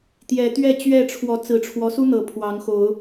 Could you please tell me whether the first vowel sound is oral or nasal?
oral